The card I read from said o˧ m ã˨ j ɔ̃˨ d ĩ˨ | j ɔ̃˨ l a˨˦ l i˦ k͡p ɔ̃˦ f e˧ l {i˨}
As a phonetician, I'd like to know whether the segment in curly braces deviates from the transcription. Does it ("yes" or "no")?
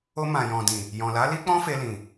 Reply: yes